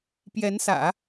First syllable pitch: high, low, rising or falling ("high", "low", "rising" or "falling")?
rising